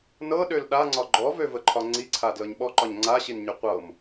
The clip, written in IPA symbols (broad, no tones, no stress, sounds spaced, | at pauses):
n ɤ ɗ ø l ɗ a ŋ͡ǀ ɒ ɡ͡ǃ ɔ v ø v ə ǃʰ ɒ ŋ͡ǀ i ǀʰ a d l ɤ ɲ ɓ ɔ ǃ ɒ ɲ ŋ͡ǀ a ɕ i n ɲ ø qʷ ɤ m